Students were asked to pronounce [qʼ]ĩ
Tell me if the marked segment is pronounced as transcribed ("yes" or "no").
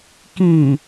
no